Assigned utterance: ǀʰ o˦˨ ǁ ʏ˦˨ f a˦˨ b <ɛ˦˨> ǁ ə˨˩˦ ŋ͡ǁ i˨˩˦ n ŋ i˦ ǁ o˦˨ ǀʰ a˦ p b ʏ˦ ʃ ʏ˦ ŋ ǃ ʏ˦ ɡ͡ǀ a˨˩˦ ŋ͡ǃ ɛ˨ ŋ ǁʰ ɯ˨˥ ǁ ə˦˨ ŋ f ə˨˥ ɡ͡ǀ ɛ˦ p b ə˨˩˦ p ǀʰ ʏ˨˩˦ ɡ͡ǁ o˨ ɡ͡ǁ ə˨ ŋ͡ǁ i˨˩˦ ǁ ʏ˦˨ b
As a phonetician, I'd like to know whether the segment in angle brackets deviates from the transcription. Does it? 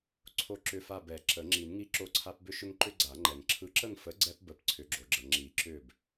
yes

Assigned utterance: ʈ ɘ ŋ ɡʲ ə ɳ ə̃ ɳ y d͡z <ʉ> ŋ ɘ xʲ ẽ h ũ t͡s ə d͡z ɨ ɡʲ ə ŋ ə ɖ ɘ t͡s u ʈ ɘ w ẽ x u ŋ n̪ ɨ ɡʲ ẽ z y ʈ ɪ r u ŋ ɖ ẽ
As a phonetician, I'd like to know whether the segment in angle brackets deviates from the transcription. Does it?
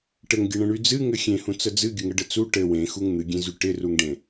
yes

